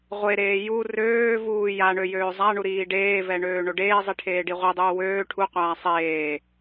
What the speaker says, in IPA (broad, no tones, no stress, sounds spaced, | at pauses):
ʁʷ e ɾ eː j u r øː v uː j a ɳ ø j øː zˤ a ɳ u ɾ iː ɖ eː v ɛ ɳ øː ɳ o ɖ eː zˤ i ʈʰ eː ɖ i ʁʷ i dˤ uː w øː ʈʰ u qʷ aː sˤ eː